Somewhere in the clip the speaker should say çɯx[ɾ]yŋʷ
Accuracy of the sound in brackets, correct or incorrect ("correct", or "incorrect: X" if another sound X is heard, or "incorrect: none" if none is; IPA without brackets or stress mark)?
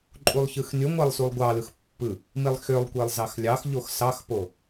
incorrect: n